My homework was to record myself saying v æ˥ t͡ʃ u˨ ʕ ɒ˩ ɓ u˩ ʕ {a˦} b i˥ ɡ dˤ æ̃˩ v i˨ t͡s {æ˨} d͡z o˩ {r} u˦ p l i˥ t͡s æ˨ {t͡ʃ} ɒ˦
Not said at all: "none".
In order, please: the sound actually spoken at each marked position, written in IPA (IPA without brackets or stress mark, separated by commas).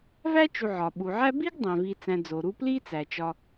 æ˦, æ̃˨, ɾ, t͡ʃ